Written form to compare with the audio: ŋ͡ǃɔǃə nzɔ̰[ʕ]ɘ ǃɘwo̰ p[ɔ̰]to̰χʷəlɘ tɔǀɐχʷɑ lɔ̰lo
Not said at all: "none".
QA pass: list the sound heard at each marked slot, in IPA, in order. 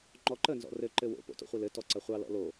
r, o̰

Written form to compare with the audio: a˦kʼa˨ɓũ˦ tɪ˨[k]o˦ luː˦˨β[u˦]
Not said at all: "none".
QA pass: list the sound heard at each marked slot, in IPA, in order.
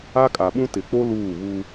k͡p, u˦

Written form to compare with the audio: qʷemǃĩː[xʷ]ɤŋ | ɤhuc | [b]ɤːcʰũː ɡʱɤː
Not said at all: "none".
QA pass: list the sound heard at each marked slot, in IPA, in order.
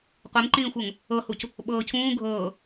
xʷ, ɓ

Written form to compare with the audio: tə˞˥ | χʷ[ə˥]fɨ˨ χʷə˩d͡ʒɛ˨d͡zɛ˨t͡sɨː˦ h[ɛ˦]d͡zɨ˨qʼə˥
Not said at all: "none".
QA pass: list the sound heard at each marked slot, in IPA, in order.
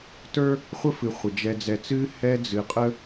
ə˥, ɛ˦

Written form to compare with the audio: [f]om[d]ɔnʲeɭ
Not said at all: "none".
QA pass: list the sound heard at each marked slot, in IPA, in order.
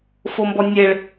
f, b

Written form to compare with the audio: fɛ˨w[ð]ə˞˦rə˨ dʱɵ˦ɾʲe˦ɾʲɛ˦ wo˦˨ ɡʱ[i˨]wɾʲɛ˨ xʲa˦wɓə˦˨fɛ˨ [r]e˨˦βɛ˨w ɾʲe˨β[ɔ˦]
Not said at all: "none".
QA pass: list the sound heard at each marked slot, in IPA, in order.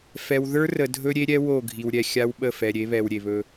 ð, i˨, ɾʲ, ɵ˦

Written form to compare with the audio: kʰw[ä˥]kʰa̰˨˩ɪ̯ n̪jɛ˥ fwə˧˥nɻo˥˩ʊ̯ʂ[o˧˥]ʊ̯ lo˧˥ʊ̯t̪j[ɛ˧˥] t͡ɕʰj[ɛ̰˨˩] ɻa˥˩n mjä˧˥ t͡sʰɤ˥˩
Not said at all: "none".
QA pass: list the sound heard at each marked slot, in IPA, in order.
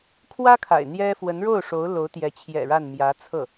ä˥, o˧˥, ɛ˧˥, ɛ̰˨˩

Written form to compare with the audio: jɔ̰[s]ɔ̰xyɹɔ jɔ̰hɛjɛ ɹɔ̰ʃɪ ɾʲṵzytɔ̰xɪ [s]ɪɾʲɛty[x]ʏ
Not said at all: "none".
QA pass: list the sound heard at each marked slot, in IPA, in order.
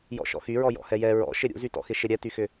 ʃ, ʃ, x

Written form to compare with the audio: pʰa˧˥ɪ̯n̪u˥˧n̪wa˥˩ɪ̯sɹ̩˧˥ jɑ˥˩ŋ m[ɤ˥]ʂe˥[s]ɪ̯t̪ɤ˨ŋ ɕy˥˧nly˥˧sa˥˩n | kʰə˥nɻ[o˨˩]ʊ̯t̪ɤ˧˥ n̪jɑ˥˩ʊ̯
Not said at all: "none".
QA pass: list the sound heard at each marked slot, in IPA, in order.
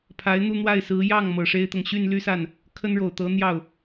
ɤ˨˩, none, o˨˩

